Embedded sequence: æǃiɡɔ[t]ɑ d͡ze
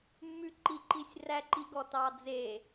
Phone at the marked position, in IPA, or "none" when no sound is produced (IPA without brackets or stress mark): t